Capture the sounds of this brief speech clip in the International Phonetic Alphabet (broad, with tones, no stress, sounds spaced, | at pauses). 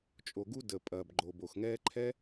t͡ʃʼ o˩ ɡ u˥ d ə˩ pʼ ɐː˩ b ɡ͡ǃ o˩ b o˩ x ŋ ɛː˥ ǃʰ ɛ˥